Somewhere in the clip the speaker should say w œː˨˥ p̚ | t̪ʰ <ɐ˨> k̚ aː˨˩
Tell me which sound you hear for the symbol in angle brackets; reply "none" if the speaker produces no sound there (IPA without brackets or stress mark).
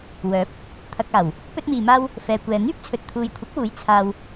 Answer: ɐ˨